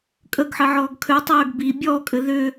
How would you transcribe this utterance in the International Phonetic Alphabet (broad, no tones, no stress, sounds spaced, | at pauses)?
kʼ ə ɡ ħ ɘ ʕ ɔː ɡ kʰ ø tˤ øː ɡ b i bʲ ɔː kʼ ɘ ð ʏ